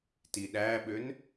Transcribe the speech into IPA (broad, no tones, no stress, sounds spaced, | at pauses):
t i ɗ æ ɓ ø n